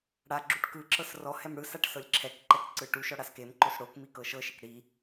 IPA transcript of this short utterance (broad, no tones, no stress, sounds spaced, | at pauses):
ɽ a ɡ͡ǁ u ʈ k ɯ ǁ ɤ s r ɔ h ɛ m ɽ ɯ s a ʈ s ɤ lʲ ǁʰ ɛ k ǃ ɛ k ǀ ɯ ʈ u ʃ ɔ ɽ a s k e m ǃ o s ɽ o k m i k ɤ ʃ ɤ ʃ e k ɽ i